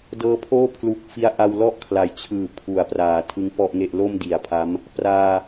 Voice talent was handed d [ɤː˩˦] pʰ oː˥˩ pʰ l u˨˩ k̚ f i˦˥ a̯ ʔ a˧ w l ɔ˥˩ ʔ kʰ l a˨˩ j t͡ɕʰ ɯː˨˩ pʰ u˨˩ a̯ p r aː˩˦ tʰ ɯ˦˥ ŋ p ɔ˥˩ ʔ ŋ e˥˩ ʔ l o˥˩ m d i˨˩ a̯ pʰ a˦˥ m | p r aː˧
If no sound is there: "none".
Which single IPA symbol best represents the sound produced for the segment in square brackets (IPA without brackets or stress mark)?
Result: ɤː˧